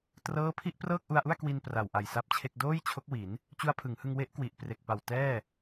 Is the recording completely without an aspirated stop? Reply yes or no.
no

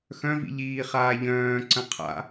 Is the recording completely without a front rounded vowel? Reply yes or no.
no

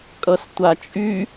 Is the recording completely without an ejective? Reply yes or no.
no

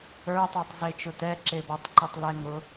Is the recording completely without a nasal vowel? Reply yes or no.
yes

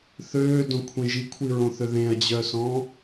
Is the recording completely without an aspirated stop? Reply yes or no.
no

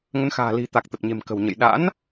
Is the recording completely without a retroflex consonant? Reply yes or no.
yes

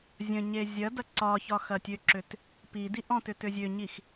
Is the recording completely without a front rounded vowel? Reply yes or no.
no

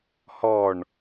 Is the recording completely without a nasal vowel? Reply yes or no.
yes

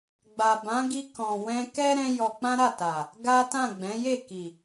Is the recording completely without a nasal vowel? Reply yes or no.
no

